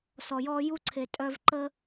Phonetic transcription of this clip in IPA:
s ɔ˧ j ɔː˥ j u˥ ǀʰ e˧ tʼ œ˥ v ǃ ə˥

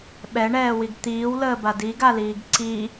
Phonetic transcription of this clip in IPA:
ɓ ɛ ɳ ɛː w i ɡ t̪ iː w l əː b a d i ɡ a l iː ɡ ǀ i

